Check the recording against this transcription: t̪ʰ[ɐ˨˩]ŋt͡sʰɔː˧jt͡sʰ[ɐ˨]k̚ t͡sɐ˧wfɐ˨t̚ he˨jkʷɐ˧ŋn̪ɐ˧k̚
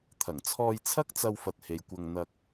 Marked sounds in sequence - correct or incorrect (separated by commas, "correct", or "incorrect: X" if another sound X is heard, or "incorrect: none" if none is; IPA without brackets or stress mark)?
correct, incorrect: ɐ˥